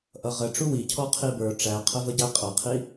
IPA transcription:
ʔʌʁə ʈ͡ʂuwi cʰɔqʰibə˞ ʈ͡ʂæqʰəvəɟæ qʼʌqʰi

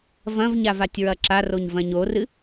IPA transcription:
vɐ̃vɲav atʲɹɐǁaroɲ vɐ̃ɲorɨ

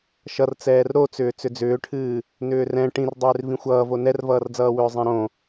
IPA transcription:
ʃʌr t͡sɛːrɾot͡sʏː t͡sʏd͡zʏːʈʰɨː | nʏːrɛ̃ ʈĩrdˤʏːr vĩxʷʌːvo nɛrvʌːrd͡zʌːwʏː zˤɛ̃ɾõ

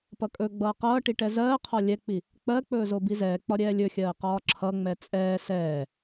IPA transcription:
pʌkʼɵɡ͡bʌː qʌːʈi ʈɛzɜːqʰɒ lʲɛk͡pi | k͡pɜk͡pɵː zobizɛːk͡pɒ ɾʲɛːlʲɵxʲɜː qɒːǁʰʌŋ͡mɛ t͡sʼɛː sɛː

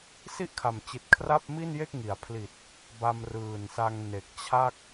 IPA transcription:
si˥˩ʔkʰa˨˩m t͡ɕi˨˩t̚kʰra˥˩p̚mi˥˩nje˥˩k̚ ŋi˩˦a̯pʰli˨˩t̚ | ba˧m rɯː˨˩nsa˧ŋ ne˨˩k̚t͡ɕʰa˥˩k̚

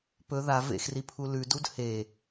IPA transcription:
pɵ ða vḛxripʰu lʉdud he

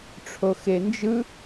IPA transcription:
ʈ͡ʂʰoxend͡ʒɯ

